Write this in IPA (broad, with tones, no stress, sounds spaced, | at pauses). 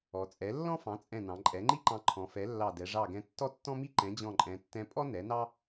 ɔ˩˧ t͡sʼ ɛ˩˥ lː ɔ̃˥ f ɑ̃˩˥ t͡sʼ ɛ̃˧˩ n ɑ̃˩˧ ǃʼ ɛ˩˥ ŋ͡ǃ i˥ ǃ ɑ̃˧ ǃʰ ɔ̃˩˧ f ɛ˩˥ lː ɑ˧˩ d ɛ˩˧ ʐ ɑ˧˩ ɡ ɛ̃˧ tː ɔ˥ tː ɔ̃˥ m i˥ ǃ ɛ̃˩˥ d͡ʑ ɔ̃˧˩ ǃʼ ɛ̃˩˧ tː ɛ̃˧ pʼ ɔ˥ n ɛ˩˥ n ɑ˥